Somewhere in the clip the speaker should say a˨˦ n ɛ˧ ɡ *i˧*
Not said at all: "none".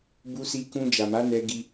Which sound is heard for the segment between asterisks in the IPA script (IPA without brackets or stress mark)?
i˧